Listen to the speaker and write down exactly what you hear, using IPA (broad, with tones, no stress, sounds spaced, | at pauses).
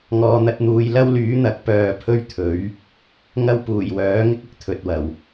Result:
ŋ ɔː˨ n̪ ɐ˧ t̚ n̪ uː˨˧ j l ɐ˥ w l yː˨˥ n̪ ɐ˨˥ k̚ p œː˨ pʰ ɵ˥ ɥ t̪ʰ ɵ˨˥ ɥ | ŋ ɐ˥ w p uː˨˩ j w œː˨˥ ŋ ɪ˥ k̚ ɪ˧ k̚ t̪ʰ ɵ˨ t̚ w ɐ˨˩ w